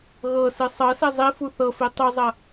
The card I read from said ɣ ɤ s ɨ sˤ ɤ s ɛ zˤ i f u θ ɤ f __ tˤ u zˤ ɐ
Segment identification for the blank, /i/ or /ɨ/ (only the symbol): i